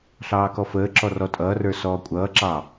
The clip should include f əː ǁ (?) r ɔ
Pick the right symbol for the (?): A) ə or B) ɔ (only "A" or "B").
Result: B